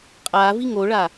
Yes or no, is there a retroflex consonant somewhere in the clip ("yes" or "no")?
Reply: yes